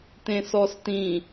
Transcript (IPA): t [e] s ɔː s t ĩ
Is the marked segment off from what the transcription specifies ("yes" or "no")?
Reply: yes